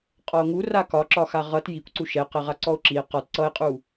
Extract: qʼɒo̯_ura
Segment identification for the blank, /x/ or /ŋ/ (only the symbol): ŋ